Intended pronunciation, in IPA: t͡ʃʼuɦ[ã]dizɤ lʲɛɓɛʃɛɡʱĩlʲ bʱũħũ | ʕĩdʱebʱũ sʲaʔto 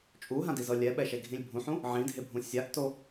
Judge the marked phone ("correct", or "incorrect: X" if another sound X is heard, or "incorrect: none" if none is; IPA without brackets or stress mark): correct